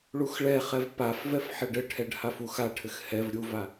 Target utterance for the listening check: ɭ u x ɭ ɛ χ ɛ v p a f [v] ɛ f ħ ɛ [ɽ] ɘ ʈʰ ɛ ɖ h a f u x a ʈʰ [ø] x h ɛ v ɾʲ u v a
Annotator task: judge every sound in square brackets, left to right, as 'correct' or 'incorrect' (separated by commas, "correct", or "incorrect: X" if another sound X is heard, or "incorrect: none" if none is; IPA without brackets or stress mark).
correct, incorrect: ɖ, incorrect: ɘ